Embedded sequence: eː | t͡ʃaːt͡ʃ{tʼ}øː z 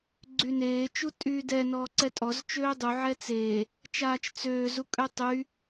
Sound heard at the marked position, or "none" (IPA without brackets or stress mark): t͡s